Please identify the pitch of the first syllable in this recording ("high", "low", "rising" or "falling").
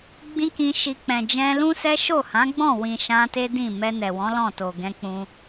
high